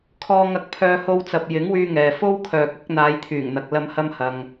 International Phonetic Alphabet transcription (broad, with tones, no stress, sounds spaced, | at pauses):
kʰ ɔː˧ ŋ ɐ˧ k̚ pʰ œː˧ h o˧ w t͡s ɐ˨ p̚ j ɪ˨˥ ŋ w yː˧ ŋ ɛː˨ f o˥ w kʰ œː˨ k̚ ʊ˨˥ k̚ n̪ aː˨˧ j t̪ʰ yː˨˩ ŋ n̪ ɐ˨ k̚ l ɐ˧ m h ɐ˧ m h ɐ˨ ŋ